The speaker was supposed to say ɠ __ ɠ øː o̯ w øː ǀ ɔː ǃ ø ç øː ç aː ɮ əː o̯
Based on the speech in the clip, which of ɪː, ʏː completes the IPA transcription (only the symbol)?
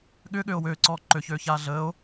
ʏː